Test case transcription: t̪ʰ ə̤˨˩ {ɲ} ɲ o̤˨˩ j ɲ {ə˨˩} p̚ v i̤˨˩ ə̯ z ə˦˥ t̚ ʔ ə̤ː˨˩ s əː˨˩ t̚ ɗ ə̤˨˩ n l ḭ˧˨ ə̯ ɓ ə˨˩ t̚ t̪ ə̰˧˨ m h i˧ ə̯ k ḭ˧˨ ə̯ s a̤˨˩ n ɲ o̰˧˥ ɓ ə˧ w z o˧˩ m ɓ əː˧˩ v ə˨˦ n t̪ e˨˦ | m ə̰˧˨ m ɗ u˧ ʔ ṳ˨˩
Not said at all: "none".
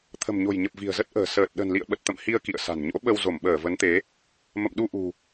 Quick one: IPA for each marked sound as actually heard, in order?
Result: m, ə˨˩

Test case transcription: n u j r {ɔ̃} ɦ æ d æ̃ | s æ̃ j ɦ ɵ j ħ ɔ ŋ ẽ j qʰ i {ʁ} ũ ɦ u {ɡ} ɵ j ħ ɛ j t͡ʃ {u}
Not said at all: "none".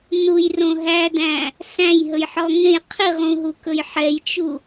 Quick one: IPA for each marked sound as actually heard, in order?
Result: õ, ʁ, k, u

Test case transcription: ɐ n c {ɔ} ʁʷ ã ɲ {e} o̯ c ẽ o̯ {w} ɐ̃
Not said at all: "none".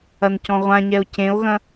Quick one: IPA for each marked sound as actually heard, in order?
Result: ɔ̃, ɛ, ɣ

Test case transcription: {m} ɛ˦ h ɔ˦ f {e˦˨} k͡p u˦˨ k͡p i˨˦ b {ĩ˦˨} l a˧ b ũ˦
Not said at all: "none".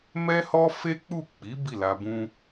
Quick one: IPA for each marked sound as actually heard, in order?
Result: m, e˦, i˦˨

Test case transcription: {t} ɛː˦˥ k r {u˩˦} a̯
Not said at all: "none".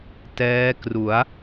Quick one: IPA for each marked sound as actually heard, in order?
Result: t, u˩˦

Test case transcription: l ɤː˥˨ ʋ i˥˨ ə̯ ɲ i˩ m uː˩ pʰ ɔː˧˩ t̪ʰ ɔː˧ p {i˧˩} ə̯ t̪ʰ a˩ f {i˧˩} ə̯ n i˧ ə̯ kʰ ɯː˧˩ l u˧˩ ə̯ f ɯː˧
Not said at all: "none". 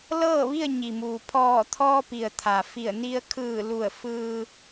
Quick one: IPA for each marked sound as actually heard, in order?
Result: i˩, i˧˩

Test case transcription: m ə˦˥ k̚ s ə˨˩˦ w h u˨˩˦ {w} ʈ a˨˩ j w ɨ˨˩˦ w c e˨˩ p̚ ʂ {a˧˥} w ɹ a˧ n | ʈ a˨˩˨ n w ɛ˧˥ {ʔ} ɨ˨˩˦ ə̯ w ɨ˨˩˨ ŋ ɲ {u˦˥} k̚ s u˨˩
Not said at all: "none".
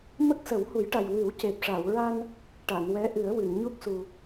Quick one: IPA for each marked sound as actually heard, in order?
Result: j, a˨˩˨, ʔ, u˦˥

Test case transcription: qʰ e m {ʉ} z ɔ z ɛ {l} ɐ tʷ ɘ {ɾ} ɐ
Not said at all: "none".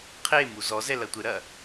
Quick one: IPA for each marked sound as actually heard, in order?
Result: u, l, ɾ

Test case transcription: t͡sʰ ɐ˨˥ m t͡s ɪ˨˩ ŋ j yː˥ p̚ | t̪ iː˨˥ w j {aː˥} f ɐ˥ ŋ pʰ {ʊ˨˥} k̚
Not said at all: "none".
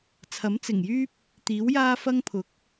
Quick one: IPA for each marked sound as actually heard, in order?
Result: aː˥, ʊ˨˥

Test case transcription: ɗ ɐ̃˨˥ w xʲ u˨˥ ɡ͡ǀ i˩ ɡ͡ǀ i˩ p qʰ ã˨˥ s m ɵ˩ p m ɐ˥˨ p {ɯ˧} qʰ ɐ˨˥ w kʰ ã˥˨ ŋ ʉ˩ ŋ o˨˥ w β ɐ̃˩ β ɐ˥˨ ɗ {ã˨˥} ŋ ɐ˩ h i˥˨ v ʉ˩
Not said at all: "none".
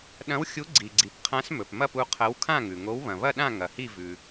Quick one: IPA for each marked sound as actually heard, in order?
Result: u˧, ã˥˨

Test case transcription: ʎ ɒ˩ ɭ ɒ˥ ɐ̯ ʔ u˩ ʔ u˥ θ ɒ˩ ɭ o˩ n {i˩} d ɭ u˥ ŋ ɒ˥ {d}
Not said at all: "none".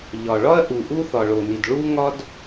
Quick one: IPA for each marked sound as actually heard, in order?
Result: i˩, d

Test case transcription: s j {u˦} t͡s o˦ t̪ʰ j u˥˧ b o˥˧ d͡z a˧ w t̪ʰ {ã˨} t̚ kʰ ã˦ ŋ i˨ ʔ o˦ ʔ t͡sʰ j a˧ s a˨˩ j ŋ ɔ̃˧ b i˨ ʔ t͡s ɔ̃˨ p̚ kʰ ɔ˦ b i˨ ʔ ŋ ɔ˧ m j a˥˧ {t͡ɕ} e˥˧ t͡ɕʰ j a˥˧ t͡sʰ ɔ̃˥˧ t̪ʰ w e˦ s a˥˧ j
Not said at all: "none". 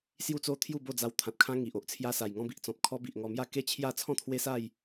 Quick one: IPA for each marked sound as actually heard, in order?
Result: u˦, ã˨, k

